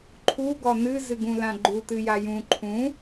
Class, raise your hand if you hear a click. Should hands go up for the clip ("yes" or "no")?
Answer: yes